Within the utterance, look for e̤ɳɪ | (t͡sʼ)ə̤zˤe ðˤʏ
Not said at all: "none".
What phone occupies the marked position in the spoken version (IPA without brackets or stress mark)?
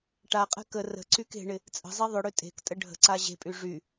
t͡sʼ